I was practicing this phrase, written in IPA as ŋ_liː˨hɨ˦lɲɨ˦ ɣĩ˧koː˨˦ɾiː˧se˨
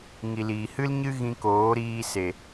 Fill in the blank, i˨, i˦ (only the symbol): i˨